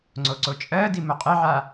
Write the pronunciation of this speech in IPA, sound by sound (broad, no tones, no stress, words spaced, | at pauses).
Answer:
ŋ͡ǀoǀot͡ʃʼɜdi moqʼɪʕa